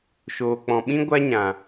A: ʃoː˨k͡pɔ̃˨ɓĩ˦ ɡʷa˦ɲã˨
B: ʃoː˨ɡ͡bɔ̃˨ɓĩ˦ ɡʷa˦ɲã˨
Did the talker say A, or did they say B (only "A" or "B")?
A